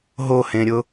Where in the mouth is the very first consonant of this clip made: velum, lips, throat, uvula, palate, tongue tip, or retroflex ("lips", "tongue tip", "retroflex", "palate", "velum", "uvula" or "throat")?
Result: throat